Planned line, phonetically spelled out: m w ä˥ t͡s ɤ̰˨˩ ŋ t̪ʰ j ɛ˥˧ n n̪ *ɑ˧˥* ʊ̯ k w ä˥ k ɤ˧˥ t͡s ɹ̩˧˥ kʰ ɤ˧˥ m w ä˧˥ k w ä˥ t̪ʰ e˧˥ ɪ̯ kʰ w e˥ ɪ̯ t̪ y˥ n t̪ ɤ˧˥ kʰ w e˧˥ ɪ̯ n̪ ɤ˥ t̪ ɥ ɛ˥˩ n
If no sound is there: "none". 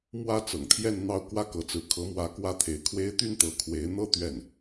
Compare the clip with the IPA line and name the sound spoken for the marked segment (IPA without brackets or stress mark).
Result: ɑ˥˩